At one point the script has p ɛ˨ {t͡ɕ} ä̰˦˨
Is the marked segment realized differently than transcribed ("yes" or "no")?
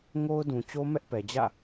yes